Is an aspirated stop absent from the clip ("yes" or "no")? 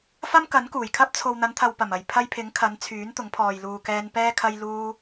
no